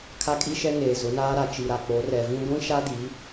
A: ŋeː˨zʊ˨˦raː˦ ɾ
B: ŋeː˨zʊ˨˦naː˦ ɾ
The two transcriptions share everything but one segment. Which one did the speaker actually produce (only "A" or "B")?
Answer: B